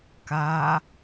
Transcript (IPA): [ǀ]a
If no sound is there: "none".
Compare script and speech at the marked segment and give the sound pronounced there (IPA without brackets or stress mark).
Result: k